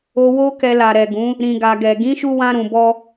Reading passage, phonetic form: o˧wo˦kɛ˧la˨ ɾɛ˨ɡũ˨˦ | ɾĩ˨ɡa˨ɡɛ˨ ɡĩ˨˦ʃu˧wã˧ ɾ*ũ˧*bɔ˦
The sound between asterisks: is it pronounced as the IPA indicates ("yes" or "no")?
yes